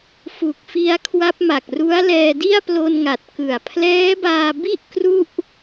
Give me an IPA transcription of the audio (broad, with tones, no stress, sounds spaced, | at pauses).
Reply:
f u˨˩ k̚ f i˧ a̯ kʰ w a˦˥ p̚ m a˨˩ k̚ r u˦˥ a̯ l ɛː˧ d i˥˩ a̯ p l o˧ n ŋ a˨˩ t̚ k ɯ˨˩ a̯ pʰ l ɛː˦˥ b aː˧ b i˥˩ ʔ k r u˥˩ ʔ